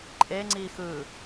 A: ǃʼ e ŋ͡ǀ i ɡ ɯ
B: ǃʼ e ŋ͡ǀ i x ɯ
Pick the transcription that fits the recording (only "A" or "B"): B